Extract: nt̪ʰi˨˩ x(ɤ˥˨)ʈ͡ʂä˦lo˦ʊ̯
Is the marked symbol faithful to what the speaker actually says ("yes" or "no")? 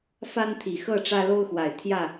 yes